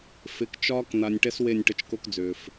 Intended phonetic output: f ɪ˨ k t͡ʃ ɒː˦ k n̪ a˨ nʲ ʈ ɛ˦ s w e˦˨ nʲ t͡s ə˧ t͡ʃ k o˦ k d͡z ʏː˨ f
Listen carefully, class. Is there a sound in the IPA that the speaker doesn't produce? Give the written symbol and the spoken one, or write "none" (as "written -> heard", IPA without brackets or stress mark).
t͡s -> ʈ